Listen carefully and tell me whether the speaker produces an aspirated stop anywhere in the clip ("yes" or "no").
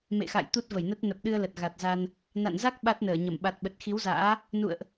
no